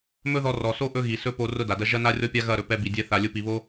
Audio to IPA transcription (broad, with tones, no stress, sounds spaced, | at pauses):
m ɵ˦ ð ɔ˧ r ɔ˨ s o˦ ʔ ɵ˦ ɣ i˨ s ɵ˦ p o˧ r ʊ˦ d a˨ d ɐ˦ ʒ ɐ˦ n a˦ rʲ ɔ˦ pʲ a˦ ɣ ɐ˦˨ ɾ ɵ˧ p ɛ˧ b i˨ dʲ ɛ˦ θ a˧ lʲ ʊ˦ p i˧ β o˦